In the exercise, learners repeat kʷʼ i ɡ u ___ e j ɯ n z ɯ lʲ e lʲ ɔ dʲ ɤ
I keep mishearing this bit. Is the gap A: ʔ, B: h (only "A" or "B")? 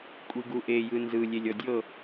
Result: A